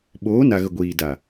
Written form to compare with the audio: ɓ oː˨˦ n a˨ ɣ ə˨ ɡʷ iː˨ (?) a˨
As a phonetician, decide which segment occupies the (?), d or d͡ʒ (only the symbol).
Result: d